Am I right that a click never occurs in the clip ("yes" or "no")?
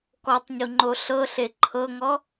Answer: no